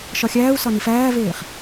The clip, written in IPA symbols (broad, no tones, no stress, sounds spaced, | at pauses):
ʃ ɒ xʲ æː u̯ s ɒ n i f æː v eː χ